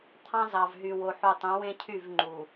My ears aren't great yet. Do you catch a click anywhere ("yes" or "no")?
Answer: yes